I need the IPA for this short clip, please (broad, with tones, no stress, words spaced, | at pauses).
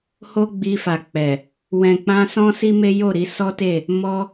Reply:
ho˦ɡ͡bi˧fa˨k͡pɛ˨ | wɛ̃˨k͡pã˧sɔ̃˦ si˦me˦ jo˦˨ ɾi˨˦sɔ˦te˦˨ | mɔ˧